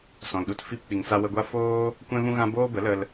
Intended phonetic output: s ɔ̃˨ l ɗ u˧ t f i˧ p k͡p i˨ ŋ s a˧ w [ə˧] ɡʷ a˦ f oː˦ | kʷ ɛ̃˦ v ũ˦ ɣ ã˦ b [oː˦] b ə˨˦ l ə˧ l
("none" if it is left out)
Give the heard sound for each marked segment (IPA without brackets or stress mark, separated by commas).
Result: ə˧, oː˦